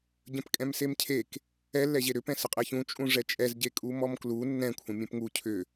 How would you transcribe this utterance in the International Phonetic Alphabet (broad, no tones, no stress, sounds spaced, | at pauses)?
ɟ ə̃ p kʼ ɛ̃ m s e m cʰ e k | ɛ lː ɛ ʑ e ɾ ʏ p ɛ̃ s ə qʼ ɛ ç ũ t͡ʃʼ ũ ʐ ɛ t͡ʃʼ ɛ z ɟ e kʼ u m ɔ m k l u nː ɛ̃ kʷʰ ə̃ mʲ ɛ̃ p ŋ u cʰ ʏ